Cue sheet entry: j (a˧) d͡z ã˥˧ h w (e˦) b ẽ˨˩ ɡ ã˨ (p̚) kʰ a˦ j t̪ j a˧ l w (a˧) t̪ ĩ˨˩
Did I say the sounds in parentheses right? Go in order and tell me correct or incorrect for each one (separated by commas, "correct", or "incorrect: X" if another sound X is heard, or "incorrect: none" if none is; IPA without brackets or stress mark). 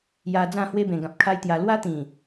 correct, correct, correct, incorrect: a˦